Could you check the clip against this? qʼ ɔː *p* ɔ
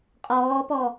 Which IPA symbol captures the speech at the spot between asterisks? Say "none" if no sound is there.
p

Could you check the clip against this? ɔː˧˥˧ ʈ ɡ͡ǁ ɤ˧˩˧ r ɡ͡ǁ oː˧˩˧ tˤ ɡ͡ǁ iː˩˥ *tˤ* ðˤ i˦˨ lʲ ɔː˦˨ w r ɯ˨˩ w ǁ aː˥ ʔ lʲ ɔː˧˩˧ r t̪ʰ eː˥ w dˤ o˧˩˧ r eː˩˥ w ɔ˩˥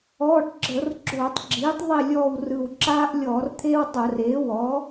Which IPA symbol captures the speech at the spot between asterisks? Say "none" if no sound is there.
tˤ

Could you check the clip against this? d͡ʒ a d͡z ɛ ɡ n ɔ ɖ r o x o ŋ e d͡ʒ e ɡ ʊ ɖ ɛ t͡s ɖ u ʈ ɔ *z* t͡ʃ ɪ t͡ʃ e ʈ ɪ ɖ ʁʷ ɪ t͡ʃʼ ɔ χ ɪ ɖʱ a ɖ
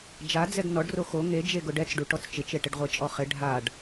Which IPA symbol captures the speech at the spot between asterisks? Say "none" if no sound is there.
t͡s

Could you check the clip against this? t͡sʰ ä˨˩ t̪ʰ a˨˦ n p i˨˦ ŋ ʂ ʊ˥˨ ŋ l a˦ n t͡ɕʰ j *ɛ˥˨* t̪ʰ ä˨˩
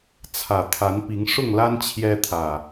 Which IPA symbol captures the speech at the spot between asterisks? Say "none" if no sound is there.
ɛ˦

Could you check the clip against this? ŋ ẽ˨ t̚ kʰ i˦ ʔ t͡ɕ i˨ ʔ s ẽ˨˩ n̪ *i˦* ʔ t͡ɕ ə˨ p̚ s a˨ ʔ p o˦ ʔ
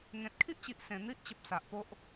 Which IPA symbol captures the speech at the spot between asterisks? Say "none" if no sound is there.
i˦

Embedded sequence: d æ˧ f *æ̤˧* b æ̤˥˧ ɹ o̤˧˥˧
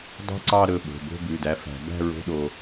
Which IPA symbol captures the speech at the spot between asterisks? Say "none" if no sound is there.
æ̤˨˩˦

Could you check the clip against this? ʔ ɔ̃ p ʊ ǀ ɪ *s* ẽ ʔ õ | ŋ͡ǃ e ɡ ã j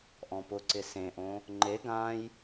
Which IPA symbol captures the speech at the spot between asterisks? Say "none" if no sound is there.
s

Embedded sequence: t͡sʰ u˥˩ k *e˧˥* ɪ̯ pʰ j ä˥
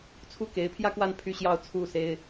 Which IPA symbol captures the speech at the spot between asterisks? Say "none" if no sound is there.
e˧˥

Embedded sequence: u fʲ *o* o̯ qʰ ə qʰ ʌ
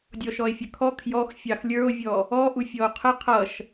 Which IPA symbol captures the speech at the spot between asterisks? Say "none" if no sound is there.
ɔ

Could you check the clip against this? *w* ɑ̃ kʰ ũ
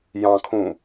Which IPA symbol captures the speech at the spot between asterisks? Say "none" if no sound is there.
j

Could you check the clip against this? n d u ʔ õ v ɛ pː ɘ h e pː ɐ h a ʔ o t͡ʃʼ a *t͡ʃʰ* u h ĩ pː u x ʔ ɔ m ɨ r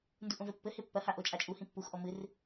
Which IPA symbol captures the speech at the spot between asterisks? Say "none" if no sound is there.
t͡ʃʼ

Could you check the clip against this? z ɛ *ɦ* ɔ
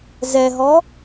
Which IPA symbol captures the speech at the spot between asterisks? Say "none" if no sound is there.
ɦ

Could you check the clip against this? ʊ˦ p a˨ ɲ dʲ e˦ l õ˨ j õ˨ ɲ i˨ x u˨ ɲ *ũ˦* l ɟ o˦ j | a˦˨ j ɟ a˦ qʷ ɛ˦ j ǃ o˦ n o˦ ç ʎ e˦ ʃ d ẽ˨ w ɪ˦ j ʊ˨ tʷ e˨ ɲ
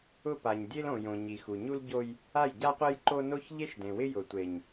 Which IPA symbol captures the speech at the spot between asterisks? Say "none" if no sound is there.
u˦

